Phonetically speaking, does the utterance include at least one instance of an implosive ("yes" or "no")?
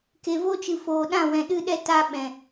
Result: yes